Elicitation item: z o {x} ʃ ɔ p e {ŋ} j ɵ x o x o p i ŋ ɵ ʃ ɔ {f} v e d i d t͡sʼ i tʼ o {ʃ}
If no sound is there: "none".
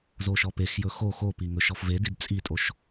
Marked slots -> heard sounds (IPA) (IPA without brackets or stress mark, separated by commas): none, x, f, ʃ